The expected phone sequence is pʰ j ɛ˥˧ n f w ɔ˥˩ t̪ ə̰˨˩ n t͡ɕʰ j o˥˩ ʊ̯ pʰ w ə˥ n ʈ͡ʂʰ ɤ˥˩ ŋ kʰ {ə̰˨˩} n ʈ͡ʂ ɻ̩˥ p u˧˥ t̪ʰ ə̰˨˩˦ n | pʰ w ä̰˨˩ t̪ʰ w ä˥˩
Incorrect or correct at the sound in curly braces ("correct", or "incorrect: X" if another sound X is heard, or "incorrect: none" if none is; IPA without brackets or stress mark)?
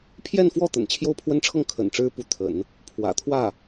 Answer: correct